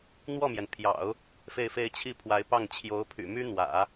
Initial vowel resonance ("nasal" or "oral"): oral